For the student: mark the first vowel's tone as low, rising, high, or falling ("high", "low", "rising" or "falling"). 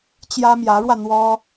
high